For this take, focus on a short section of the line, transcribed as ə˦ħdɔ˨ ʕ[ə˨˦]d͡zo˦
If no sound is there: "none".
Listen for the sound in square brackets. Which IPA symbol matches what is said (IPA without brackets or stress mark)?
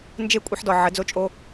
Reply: ə˨˦